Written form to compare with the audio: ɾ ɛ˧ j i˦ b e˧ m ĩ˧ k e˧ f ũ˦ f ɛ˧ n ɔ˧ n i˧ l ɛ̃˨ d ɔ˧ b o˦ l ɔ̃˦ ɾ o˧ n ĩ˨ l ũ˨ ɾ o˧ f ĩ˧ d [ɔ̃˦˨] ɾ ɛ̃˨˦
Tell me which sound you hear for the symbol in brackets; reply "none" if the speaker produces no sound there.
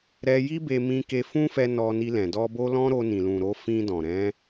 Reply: ɔ̃˨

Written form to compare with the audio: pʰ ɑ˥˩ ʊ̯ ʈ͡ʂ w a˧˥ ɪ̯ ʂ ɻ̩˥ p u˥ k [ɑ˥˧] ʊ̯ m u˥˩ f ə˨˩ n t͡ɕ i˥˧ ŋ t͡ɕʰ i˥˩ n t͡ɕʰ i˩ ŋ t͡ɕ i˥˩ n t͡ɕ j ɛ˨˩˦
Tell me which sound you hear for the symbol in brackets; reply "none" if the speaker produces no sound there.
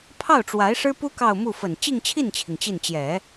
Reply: ɑ˥˧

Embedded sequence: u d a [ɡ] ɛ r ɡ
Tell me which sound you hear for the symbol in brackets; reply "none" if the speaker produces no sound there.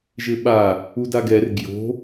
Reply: ɡ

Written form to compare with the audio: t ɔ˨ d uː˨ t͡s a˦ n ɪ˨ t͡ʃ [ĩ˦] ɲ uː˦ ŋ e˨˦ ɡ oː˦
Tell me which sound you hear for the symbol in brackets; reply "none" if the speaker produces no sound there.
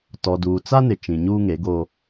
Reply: ĩ˨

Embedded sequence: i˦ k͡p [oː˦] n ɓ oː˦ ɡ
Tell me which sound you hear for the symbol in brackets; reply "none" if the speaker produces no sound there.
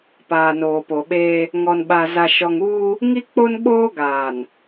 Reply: o˦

